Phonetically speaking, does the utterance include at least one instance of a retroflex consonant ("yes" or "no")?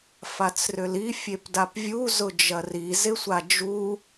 no